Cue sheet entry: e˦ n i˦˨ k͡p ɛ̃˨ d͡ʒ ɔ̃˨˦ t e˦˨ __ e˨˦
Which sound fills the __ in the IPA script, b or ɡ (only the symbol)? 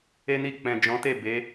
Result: b